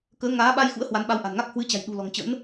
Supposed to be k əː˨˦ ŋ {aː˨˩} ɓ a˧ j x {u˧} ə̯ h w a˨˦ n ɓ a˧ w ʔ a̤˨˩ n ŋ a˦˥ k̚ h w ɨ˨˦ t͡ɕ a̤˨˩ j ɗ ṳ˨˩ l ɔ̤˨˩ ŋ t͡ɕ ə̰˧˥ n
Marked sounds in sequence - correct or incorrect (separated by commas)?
incorrect, incorrect